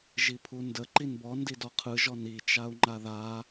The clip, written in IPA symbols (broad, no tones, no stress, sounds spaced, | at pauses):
ʒ i pʰ u n d ə ǃ i n b ɔ n d i d ɔ qʰ ɯ ʒ ɔ n i t͡ʃ a u̯ ŋ͡ǃ a ð a